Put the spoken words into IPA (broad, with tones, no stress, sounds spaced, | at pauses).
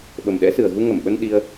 ɓ ə˨˩ m ɗ ɛ̰˧˥ s ɨ˨˩ ə̯ ɣ u˧ ŋ ə˧˩ m ɓ ə˧ n ɗ i˧ ə̯